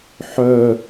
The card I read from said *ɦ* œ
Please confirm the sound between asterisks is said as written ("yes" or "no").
no